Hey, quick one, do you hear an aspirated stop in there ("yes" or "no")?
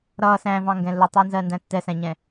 no